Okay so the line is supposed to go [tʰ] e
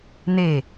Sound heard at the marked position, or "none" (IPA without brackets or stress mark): n̪